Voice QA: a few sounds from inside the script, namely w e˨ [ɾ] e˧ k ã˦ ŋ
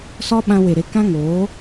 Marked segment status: correct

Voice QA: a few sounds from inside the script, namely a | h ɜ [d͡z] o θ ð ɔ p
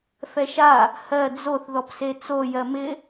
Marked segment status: correct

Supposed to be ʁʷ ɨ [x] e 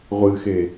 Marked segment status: correct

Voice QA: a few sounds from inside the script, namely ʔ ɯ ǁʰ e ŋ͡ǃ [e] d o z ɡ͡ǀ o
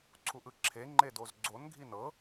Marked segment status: correct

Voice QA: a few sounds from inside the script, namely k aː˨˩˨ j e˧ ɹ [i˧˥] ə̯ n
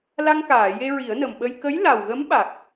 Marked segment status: incorrect: i˨˩˦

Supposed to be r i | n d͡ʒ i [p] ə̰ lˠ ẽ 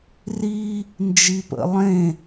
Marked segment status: correct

